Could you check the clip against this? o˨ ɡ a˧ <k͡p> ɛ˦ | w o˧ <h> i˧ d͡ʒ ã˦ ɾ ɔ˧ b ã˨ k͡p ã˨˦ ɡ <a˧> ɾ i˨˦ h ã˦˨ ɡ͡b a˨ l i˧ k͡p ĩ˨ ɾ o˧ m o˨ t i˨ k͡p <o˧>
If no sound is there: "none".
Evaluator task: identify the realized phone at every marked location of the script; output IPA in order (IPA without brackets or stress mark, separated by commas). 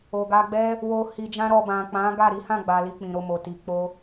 ɡ͡b, h, a˦˨, o˧